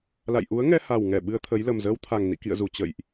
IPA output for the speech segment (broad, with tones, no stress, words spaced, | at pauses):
la̰˧˨jʔu˨˦ə̯ŋɛ˧ ha˨˩wŋɛ˧˩ ɓɨ˧ə̯t̪ʰə˨˦j lə˨˩mzəː˧wt̪ʰa˨˩ŋ nḭ˧˨ kḭ˧˨ə̯zu˨˩ t͡ɕə̰˧˨jʔ